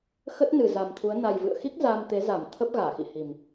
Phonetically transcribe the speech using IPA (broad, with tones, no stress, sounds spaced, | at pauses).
x ə˦˥ t̚ n ɨ˨˩ z a˨˩ m t̪ʰ u˨˦ ə̯ n a˨˩ j v ɨ̰˧˨ ə̯ x i˦˥ k̚ z aː˧ m t̪ e˨˦ z a˧˩ m t̪ʰ ə˦˥ p̚ ɣ aː˧˩ x ḭ˧˨ h i˨˩ m